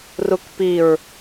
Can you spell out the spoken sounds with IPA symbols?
r u k p i ɹ

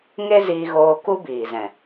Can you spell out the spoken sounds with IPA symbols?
ŋ e˦ z iː˧ ɣ oː˧ k u˦ b iː˨ z ɛ̃˨

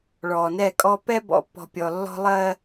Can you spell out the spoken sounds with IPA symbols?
ɭ ɔ˨ n ɛ˦˨ kʼ ɔ˦ p ɛ˦ b ɔ̰˨ pː ɔ̤˨ pʲ ɔ˨ lː ɔ̤˦ lˠ ɜ˦

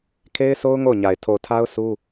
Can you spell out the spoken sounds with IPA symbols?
kʰ e˦ ɪ̯ sʰ o˦ ʊ̯ ŋ o˦˨ ʊ̯ ɲ a˨ ɪ̯ tʰ o˨ tʰ a˦ ʊ̯ s u˦

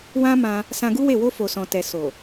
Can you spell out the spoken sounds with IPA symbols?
w ã˦ m ã˧ | s ã˧ ɡ u˦ w e˦˨ w o˧ f o˨ s ɔ̃˨ t ɛ˨ s o˨

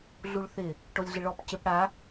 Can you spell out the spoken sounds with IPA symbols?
ɮ u ɭ θ ɪ | ʈ o lʲ ɮ ɪ ɭ ɔ p c ɪ p ɽ a

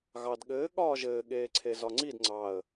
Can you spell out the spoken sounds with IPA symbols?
ɣ ɑ d ɠ ɘː ɠ ɒː ʒ ɘː ɠ eː ǀʰ e z ɒ ŋ͡ǀ i d ŋ͡ǀ ɑ ə̯

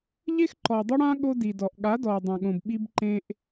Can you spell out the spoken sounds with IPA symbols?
ʎ e˦ x ǃ ɔ˨ ɪ̯ dˤ ʊ˦ ɽ ã˦ ɠ o˦ d i˨ d ɔ˨ ʔ ɠ a˨˦ d ɔ˨ ə̯ dˤ ã˨ ɠ õ˨ b ɓ i˦ b ǃ ẽ˦ ʔ

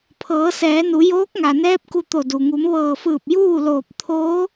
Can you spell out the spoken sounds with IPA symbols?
pʰ ɤː˩˧ s ɛː˩˧ n u˩˧ j oː˧˥ k̚ ŋ a˩ n ɛː˧˥ p̚ k u˧ t̪ o˧˩ d u˩ ŋ u˩˧ m ʋ ɤː˧˩ f ɯː˧˩ p̚ j uː˥˨ l oː˧˩ p̚ t̪ʰ oː˧˥

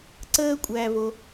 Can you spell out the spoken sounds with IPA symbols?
ǀ əː˥ kʷʼ æ˧ v o˧

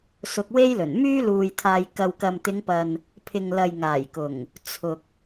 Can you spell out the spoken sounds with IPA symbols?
s ʊ˧ k̚ w e˥ j l ɵ˨˩ n m yː˥ l uː˨ j t̪ʰ aː˨ j k ɐ˨ w k ɐ˨ m t̪ ɪ˨˧ ŋ p ɐ˨ n | pʰ ɪ˨ ŋ l ɐ˨ j ŋ aː˨˩ j k ʊ˨˩ ŋ | t͡sʰ ʊ˨ k̚

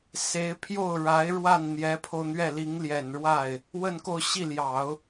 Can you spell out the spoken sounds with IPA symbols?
s e˧˥ ɪ̯ pʰ j o˥˩ ʊ̯ ɻ a˧˥ ɪ̯ ɻ w a˥˩ n n̪ j ɛ˧˥ pʰ o˧ ʊ̯ n̪ ɥ ɛ˥˩ l i˧˥ ŋ l j ɛ˨˩ n ɻ w a˥˩ ɪ̯ | w ə˥˧ n k o˥˧ ʊ̯ ɕ i˥˩ l j ɑ˨˩˦ ʊ̯

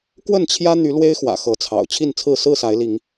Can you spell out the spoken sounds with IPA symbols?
k w ə˥˨ n t͡ɕʰ j ä˦ n̪ y˨˦ l w e˦ ɪ̯ x w ä̰˨˩ x ɤ˨˦ t͡sʰ ɑ̰˨˩ ʊ̯ t͡ɕʰ i˥˨ n t͡sʰ ɹ̩˥˨ s ɹ̩˥˨ s a˨˦ ɪ̯ l i˨˦ ŋ

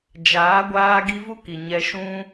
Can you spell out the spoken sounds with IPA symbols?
d͡ʒ aː˨˦ ɡʷ aː˧ ɡ i˧ v u˦ k i˨ ɲ ɛ˧ ʃ ũ˧

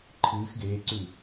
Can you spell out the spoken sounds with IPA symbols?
ǃʰ ɨː x ɡ eː ǀ ʉ

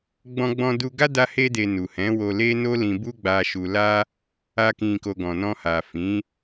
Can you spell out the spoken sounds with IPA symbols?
ɡ͡b ɔ̃˧ ɡ͡b ɔ̃˧ d u˧ ɡ a˦ d a˦ h e˦ d e˧ n u˨ h ɛ̃˨˦ w o˧ l e˦ n o˦ l ĩ˧ b u˦ ɡ͡b a˧ ʃ u˧ l a˦ | a˧ k ĩ˨ k o˨ ɡ ɔ̃˨ n ɔ̃˧ h a˨ f ĩ˨˦

